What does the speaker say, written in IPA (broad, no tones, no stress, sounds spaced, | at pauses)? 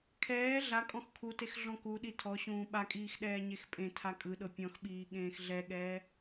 kʰ ɛː ɮ a kʼ ɔ̃ x kʰ u t e x ɮ ɔ̃ k u ɗ i tʰ ɔ ɕ ũː ɓ a kʼ iː x ɗ ɛː ɲ e x pʼ ẽ tʰ a kʼ ɯ ɗ ɤ pʲ ɔ̃ x ɓ iː ɠ ẽː x ɮ ɛ ɠ ɛː